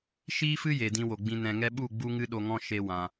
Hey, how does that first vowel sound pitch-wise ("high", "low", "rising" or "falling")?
high